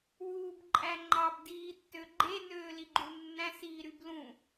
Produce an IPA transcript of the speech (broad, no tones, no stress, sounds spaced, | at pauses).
w uː b ǃʼ æ ŋ͡ǃ ɑ b d iː tː ø ɡ͡ǃ e n øː l i ɡ͡ǃ u nː æ̃ s iː ɾ y b l ũ